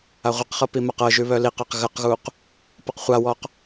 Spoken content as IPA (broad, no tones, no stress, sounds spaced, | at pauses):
a ʁʷ i q χ ɤ p i m a q ɤ ʒ ʉ β œ l i q a q ɣ ə q ɣ u q | p ɤ q χʷ a w ɔ q